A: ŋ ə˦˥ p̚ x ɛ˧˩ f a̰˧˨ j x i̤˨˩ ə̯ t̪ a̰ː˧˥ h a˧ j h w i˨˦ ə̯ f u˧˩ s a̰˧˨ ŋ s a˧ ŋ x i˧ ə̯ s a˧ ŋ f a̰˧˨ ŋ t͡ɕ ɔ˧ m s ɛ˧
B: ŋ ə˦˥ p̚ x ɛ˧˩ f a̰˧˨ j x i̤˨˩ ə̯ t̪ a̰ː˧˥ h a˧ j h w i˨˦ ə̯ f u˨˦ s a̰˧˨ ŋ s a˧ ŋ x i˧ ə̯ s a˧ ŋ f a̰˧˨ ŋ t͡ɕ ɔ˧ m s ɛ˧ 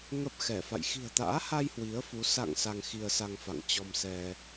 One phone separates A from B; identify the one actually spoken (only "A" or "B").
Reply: B